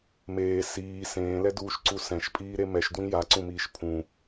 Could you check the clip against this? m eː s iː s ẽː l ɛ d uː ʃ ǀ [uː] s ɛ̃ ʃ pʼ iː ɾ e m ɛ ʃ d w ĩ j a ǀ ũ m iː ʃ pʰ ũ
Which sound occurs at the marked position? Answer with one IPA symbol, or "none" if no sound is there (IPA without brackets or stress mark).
u